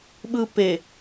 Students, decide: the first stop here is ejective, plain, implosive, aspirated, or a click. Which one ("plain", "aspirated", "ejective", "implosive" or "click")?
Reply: implosive